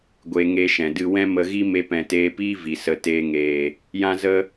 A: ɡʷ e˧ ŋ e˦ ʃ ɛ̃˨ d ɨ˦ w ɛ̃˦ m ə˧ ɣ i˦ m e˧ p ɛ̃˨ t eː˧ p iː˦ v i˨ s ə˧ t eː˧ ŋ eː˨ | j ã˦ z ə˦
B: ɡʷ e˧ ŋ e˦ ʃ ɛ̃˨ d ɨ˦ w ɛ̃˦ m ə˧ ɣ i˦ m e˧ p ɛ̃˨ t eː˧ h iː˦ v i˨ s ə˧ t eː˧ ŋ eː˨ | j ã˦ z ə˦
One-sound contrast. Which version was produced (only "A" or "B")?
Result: A